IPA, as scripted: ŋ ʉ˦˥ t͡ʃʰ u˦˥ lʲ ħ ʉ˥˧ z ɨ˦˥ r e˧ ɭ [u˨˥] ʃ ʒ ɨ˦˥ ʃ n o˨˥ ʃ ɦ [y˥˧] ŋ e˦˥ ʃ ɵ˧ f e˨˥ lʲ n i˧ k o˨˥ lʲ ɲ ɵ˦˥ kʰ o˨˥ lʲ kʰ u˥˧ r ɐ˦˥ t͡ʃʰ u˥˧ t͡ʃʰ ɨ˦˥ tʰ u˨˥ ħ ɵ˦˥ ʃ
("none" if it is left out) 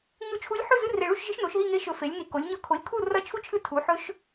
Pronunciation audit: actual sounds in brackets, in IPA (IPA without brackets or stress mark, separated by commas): u˥˧, i˥˧